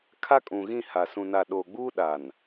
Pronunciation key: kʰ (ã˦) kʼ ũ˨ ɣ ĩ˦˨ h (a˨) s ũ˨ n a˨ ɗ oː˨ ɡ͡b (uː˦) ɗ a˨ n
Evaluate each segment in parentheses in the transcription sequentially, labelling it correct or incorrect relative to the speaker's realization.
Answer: incorrect, correct, correct

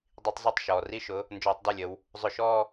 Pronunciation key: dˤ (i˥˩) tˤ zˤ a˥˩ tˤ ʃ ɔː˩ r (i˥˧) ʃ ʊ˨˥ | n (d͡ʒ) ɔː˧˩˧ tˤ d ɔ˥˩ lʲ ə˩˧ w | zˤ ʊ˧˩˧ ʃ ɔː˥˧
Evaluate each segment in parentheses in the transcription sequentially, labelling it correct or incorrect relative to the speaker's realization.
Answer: incorrect, correct, correct

